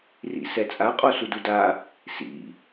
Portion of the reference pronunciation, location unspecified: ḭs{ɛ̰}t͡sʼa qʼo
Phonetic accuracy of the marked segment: incorrect: ɛ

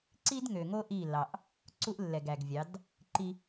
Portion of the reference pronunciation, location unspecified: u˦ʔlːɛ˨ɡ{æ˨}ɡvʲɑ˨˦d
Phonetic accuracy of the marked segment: correct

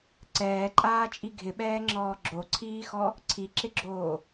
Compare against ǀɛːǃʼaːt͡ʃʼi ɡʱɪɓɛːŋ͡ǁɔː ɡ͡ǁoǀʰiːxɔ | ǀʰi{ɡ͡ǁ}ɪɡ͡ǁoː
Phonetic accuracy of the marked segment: incorrect: ǁ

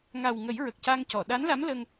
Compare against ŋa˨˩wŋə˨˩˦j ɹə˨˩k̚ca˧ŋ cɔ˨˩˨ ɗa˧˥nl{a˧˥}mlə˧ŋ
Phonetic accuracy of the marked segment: correct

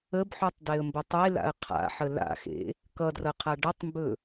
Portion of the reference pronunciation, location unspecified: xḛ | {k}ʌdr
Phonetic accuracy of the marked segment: correct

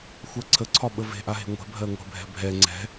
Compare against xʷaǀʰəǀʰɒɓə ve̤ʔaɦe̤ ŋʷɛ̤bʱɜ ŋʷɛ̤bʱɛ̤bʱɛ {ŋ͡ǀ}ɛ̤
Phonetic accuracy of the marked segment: correct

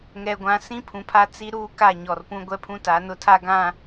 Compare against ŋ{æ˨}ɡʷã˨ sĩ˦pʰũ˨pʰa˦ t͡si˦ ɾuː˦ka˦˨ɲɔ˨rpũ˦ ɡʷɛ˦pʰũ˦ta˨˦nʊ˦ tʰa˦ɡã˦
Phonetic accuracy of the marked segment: incorrect: ɛ˨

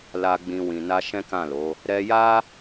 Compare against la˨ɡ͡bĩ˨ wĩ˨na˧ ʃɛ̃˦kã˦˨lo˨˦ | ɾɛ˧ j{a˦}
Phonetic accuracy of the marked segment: correct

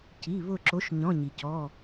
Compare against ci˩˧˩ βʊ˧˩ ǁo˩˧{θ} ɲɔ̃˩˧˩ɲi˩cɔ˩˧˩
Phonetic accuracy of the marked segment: incorrect: ʃ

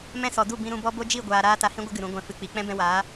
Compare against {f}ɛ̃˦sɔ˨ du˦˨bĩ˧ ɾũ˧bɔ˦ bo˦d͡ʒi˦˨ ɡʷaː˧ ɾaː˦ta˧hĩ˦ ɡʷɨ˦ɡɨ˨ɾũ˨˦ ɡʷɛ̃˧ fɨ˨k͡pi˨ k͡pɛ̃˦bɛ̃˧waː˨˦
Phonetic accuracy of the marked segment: incorrect: m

